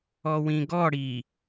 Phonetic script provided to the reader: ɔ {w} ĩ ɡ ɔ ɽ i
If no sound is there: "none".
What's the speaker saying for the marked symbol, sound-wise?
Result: w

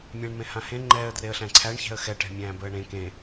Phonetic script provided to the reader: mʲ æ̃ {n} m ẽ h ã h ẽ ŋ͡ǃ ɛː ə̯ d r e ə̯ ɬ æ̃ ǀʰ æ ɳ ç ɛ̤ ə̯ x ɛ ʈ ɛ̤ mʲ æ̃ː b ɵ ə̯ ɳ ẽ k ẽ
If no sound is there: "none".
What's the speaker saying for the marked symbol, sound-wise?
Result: ɳ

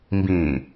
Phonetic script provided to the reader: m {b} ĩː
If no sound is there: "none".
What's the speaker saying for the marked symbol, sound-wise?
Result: b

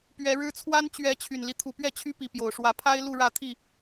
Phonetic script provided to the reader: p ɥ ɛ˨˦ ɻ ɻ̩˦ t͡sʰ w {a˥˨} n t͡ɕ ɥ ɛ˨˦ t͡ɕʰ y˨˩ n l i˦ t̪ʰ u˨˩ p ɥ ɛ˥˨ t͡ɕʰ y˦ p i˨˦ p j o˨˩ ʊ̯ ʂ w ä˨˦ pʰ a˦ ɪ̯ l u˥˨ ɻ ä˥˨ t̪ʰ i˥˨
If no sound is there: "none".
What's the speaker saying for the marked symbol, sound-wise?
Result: a˦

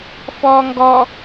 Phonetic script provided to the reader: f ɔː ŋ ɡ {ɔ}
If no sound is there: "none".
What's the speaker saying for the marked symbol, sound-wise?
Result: ɔ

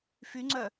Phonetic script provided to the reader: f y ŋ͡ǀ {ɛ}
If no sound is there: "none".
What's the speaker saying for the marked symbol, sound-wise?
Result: œ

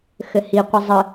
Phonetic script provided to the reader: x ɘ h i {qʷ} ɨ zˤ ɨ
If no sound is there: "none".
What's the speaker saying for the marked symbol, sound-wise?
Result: qʷ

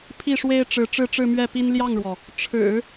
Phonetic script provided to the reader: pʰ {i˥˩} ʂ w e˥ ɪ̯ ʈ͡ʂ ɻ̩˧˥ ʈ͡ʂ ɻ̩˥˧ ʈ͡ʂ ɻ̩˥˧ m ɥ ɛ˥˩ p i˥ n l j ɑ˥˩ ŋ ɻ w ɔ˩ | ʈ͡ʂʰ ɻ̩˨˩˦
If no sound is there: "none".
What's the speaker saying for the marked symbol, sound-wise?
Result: i˥˩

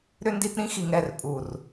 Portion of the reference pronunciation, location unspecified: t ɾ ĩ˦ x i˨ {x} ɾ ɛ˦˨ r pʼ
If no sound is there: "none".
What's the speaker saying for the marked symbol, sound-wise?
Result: ŋ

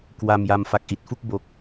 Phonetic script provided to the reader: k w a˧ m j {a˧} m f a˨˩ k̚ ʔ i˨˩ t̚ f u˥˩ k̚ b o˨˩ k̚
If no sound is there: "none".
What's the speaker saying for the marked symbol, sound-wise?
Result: a˧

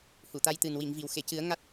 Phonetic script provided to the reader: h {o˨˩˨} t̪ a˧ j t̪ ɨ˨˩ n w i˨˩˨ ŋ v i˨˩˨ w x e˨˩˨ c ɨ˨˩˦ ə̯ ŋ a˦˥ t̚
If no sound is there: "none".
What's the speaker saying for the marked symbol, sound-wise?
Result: u˨˩˨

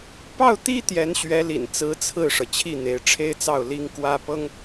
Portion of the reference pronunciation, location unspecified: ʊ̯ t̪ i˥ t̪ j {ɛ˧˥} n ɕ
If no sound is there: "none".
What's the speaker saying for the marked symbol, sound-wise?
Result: ɛ˧˥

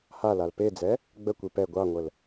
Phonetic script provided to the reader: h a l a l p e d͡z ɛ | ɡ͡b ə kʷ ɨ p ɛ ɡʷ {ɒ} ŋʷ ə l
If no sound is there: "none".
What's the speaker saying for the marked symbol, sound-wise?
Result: ɑ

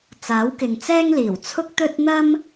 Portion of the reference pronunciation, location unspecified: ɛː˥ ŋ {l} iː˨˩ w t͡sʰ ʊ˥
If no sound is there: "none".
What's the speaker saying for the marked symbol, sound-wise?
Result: l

